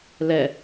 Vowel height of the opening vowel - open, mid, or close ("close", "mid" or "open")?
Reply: mid